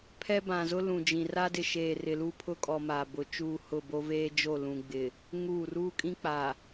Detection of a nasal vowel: present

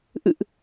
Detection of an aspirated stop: absent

